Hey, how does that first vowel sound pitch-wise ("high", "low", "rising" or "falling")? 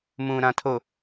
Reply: low